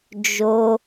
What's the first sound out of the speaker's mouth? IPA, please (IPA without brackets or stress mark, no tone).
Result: d͡ʒ